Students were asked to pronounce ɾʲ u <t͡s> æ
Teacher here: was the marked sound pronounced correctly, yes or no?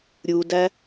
no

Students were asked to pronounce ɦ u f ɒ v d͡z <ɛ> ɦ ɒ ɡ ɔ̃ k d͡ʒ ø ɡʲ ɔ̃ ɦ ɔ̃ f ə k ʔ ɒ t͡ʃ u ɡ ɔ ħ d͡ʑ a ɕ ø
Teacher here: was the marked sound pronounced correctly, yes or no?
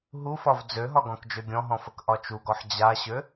no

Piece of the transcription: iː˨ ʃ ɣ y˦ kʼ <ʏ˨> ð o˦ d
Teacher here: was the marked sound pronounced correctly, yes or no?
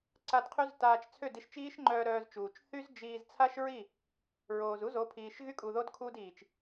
no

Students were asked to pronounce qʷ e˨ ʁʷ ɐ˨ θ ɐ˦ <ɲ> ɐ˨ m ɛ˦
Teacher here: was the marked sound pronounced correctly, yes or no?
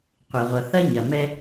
yes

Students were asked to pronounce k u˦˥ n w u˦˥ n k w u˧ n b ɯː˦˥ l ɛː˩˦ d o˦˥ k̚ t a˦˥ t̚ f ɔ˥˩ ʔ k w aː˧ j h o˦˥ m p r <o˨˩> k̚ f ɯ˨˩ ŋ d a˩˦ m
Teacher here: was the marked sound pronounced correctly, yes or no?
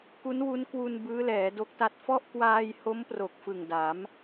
yes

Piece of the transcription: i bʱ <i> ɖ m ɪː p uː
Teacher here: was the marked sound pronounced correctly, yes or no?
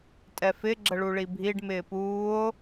yes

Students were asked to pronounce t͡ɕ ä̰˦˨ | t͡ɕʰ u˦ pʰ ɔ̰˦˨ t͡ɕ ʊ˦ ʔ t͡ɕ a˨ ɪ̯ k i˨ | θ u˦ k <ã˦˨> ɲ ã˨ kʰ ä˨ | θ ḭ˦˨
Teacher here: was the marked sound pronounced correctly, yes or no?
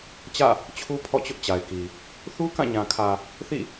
yes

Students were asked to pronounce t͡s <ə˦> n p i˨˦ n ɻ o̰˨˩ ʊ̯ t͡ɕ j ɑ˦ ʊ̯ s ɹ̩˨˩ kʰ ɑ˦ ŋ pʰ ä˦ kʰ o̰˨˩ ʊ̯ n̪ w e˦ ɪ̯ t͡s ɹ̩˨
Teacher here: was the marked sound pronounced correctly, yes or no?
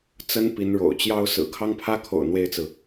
yes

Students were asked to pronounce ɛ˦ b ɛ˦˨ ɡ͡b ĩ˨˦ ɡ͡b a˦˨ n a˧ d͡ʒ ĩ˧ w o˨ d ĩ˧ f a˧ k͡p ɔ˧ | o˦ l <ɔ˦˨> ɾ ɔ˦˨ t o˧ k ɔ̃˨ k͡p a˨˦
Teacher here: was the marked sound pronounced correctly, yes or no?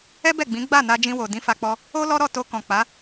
no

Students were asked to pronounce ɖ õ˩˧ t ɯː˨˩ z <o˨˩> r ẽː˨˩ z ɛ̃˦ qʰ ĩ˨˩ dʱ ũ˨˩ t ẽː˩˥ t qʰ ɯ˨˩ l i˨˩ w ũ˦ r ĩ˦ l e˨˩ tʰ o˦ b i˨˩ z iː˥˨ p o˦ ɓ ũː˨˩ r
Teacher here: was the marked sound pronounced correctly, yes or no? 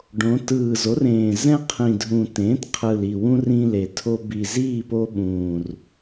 no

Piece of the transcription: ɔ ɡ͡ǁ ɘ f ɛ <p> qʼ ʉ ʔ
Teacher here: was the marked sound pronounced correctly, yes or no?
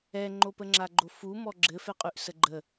no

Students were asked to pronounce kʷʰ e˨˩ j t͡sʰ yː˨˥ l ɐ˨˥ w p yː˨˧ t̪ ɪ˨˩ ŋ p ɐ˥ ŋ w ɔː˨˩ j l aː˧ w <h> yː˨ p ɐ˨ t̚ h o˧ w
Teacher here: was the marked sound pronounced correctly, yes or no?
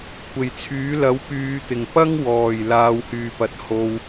yes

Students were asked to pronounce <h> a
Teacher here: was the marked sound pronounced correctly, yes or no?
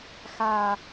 no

